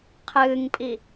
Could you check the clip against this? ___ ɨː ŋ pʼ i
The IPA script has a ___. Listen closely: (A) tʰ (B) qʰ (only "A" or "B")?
B